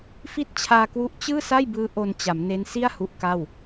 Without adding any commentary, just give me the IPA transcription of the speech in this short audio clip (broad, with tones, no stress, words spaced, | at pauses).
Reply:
fi˦˥t̚ t͡ɕʰaː˧kwu˦˥ʔ t͡ɕɯː˥˩sa˥˩jbɯː˦˥ ʔo˧nt͡ɕa˩˦mne˦˥n si˥˩a̯ hu˦˥ʔka˥˩w